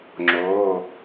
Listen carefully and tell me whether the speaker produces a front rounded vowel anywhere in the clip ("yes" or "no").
no